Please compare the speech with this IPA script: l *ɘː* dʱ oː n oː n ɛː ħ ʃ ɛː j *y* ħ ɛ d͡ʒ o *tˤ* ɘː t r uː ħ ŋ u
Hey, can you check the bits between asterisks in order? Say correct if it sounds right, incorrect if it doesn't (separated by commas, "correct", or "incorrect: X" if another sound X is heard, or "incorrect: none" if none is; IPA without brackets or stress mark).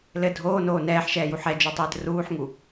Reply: incorrect: ɘ, incorrect: u, correct